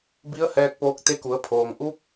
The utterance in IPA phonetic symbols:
b i˧˥ ə̯ h ɛː˧ k̚ p oː˧ k̚ t̪ e˧˥ k u˩˧ ə̯ pʰ oː˩ ŋ ʔ u˧˥ p̚

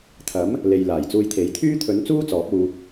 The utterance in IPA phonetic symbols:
t̪ʰ ɐ˨˥ m | l e˨ j l aː˨˩ j t͡s uː˧ j t̪ʰ e˨˥ j t̪ʰ yː˥ t̪ʰ ɵ˨˥ n t͡s uː˥ t͡s ɔː˨˥ p̚ uː˧

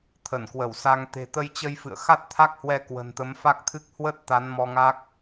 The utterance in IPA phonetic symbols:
t̪ʰ ə˧˩ n k w ə˧˩ w s a˧ ŋ t̪ e̤˨˩ t̪ ə˧ j t͡ɕ ə˧ j f ɨ̰˧˨ ə̯ x a˦˥ t̚ t̪ʰ a˦˥ k̚ h w ɛ˧ k w ə̤˨˩ n t̪ ə˨˦ m f a˦˥ k̚ t̪ʰ ɨ˦˥ k̚ h w ə˦˥ t̚ t̪ a˨˦ n m ɔ˧ ŋ a˦˥ k̚

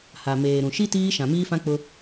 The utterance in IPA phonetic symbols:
h a˨ m eː˨ ɾ ũ˨ ʃ i˦ t iː˦ ʃ ã˨ m iː˦ f ã˦ k͡p ʊ˦

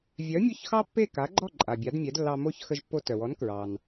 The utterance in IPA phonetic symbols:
vʲ œ˩˥ mʲ o˥˩ ç x ɑ˥ pː e˥˩ k a˩˥ ɡ͡ǃ ɔ˥˩ ǃʼ a˩ bʲ a˩˥ d mʲ ɛ˩˥ d lː ɑ˧ m o˥˩ ç x ə˧ ʒ pː o˧ t œ˩ w ɔ˩˥ n k ɹ ɑ˩ n

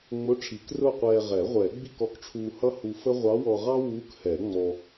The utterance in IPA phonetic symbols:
ŋ͡m ʊ˧˥˧ ʈ͡ʂʰ i˨˩˦ k r ʊː˥˧ qʷ ɛː˧ ʁ ɛ˨˩˦ ʁʷ ɛː˨˩˦ ɡ͡b i˥˧ k ɔ˧ k ʈ͡ʂʰ uː˧ h ʌ˥ h u˧ f ə˥ ʁʷ ɑ˧˥ w ɔ˧ ʁ ɑ˥ w uː˧˥ k h ɛ˨˩˦ ŋ͡m ɔ˧

